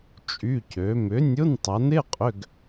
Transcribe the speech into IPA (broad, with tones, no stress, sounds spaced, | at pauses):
t͡ʃʼ y˧˥˧ c ø˨˥ m ʏ˨˥ nʲ ʊ˧˥˧ n tˤ ɐ˨˥ n ɪ˧˥˧ qʼ ʏ˧˥˧ ɡ